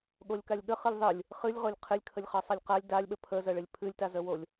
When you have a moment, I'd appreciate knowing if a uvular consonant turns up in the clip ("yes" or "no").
yes